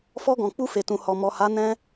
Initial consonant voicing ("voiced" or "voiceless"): voiceless